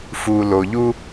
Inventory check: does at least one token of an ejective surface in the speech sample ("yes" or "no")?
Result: no